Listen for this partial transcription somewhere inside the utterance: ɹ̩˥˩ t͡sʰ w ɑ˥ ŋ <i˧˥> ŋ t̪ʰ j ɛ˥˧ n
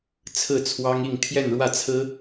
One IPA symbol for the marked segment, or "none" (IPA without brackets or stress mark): i˥˧